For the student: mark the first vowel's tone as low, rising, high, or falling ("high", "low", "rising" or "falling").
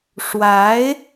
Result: rising